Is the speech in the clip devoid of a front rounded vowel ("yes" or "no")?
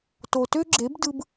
no